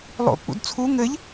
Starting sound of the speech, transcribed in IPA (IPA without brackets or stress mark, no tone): lˠ